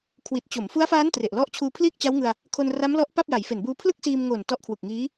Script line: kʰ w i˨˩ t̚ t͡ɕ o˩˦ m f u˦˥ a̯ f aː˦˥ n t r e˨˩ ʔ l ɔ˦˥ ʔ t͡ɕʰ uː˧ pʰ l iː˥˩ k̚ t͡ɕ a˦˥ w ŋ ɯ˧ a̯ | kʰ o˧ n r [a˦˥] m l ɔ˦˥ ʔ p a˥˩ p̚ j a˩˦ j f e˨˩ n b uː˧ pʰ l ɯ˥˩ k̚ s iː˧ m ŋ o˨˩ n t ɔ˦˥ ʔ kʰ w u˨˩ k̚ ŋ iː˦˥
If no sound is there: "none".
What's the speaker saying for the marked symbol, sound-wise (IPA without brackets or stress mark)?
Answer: a˦˥